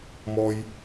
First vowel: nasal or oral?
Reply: oral